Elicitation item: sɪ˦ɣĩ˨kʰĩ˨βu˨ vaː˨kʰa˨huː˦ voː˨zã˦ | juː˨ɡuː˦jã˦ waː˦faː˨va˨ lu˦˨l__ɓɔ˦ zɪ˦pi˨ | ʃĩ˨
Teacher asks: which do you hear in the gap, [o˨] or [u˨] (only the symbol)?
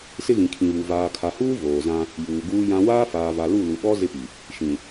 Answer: u˨